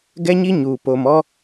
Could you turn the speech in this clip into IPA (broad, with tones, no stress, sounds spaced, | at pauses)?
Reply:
ɡ ɛ˦ ɲ i˦ ɲ uː˨ p o˨ m ɔ˦